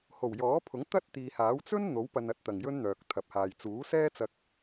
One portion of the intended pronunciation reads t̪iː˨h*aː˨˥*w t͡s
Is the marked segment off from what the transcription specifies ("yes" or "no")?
no